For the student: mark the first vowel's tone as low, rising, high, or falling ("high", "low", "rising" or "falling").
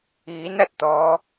rising